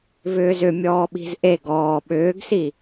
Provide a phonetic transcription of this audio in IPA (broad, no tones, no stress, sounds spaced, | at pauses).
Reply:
v ʏː z ʏ mʲ ɔː ɓ i̤ z ʔ e ɡ ɔː ɓ ʏː ɡ s i